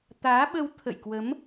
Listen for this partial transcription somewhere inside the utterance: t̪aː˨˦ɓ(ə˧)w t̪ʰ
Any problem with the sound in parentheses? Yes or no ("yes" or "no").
no